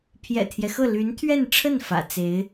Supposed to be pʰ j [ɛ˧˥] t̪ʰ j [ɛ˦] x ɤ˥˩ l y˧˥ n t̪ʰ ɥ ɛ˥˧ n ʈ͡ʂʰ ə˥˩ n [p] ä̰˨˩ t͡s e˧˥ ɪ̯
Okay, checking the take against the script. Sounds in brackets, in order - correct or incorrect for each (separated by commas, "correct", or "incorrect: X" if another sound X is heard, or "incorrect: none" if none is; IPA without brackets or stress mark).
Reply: incorrect: ɛ̰˨˩, correct, incorrect: f